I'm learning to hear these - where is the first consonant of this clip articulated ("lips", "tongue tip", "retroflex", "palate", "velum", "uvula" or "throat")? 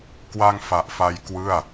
velum